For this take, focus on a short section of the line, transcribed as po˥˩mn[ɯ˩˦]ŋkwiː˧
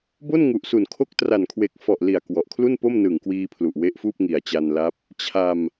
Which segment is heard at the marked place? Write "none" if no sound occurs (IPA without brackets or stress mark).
ɯ˨˩